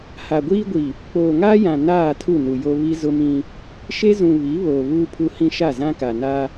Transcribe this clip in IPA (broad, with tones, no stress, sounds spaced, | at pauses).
h a˨ ɡʷ iː˦ ɡʷ i˨ | k͡p oː˨ ŋ aː˦ j ã˨ n aː˦˨ tʰ u˦˨ n u˨ j o˦ β i˦ z ʊ˦ m ĩ˦ | ʃ e˦ z ũ˨ β i˨˦ β oː˨ β uː˦ pʰ u˦ h ĩ˦ ʃ a˦˨ z ã˦ k a˨ n a˦